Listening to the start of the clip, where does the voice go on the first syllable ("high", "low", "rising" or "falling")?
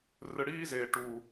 low